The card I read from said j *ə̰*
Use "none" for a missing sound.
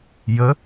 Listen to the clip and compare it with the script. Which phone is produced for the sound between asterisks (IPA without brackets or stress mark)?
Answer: ə